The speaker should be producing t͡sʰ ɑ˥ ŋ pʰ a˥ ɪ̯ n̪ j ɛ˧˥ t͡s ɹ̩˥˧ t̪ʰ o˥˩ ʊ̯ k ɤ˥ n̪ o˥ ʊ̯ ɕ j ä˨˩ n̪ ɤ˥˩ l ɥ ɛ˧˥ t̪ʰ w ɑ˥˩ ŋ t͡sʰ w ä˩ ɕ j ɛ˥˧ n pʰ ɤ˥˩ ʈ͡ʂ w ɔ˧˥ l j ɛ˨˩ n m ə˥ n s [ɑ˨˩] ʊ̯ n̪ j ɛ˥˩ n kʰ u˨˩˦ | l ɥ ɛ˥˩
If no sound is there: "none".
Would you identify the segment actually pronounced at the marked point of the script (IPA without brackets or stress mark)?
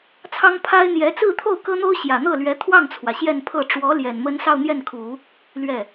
ɑ˥˧